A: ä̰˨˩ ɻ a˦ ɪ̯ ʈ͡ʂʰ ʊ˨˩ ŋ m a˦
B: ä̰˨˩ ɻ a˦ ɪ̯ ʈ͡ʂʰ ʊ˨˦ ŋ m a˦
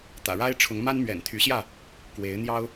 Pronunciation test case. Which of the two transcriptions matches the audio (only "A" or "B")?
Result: B